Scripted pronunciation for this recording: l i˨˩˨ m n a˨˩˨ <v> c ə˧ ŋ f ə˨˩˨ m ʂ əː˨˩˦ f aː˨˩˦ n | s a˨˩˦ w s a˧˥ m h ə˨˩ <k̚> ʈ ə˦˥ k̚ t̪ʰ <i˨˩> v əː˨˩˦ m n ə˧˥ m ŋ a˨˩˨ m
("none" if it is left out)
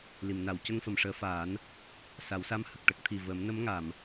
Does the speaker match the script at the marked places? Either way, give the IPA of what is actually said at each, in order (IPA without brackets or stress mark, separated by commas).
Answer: w, k̚, i˨˩